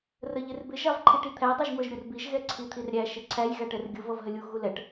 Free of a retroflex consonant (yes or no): no